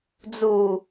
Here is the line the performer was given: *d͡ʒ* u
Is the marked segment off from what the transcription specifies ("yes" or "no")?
yes